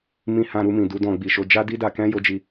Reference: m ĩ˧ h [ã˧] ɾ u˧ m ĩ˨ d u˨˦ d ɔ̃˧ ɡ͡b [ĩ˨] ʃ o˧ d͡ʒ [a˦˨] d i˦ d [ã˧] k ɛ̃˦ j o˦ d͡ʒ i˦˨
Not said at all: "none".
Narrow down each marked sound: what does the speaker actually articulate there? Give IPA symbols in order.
ã˧, i˨, a˦, a˧

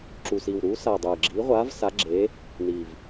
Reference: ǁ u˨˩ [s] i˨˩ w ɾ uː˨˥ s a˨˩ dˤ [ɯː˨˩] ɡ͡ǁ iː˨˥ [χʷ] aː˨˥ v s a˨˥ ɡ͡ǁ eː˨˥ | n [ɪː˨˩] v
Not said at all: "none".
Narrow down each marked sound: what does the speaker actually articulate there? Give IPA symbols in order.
s, ɯː˨˩, ʁʷ, iː˨˩

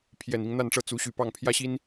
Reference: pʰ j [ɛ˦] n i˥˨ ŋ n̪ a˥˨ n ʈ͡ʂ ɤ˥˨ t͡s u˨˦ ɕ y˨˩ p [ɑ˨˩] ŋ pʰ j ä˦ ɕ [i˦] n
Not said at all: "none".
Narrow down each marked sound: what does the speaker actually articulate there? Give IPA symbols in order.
ɛ˨˩, ɑ˥˨, i˦

